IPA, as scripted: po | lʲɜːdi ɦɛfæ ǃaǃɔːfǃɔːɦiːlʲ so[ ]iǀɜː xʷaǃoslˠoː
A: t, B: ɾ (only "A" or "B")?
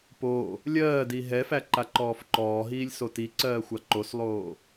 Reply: A